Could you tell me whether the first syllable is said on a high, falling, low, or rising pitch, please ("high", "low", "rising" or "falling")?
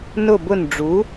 falling